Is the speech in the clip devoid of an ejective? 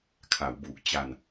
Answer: yes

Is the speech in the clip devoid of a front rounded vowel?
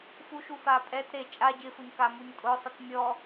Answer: yes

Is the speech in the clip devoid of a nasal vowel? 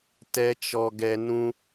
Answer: no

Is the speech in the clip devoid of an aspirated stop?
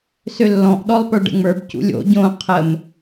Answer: no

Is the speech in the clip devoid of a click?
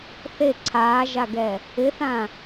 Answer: no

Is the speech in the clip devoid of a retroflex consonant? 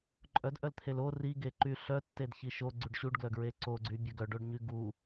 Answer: no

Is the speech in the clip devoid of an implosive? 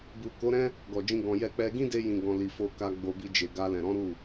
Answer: yes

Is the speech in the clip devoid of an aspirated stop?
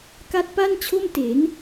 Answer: no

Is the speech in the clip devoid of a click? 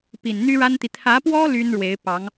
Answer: yes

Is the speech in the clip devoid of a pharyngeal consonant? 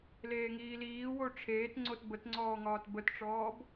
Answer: yes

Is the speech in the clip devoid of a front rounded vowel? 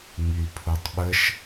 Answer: no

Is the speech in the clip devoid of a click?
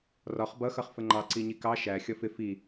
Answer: no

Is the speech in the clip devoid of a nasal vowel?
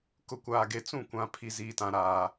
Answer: no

